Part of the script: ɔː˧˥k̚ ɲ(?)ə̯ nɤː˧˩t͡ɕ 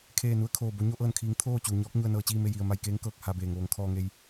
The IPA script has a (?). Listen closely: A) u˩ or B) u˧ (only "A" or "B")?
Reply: B